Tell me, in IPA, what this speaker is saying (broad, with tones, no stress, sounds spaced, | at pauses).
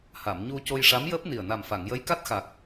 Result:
h a˨˩˨ m ɲ u˧ c o˧ j ʂ a˧˥ m j əː˦˥ p̚ n i˨˩ ə̯ n a˨˩ m f a˨˩˨ ŋ j ə˧˥ j k a˦˥ t̚ x a˨˩ k̚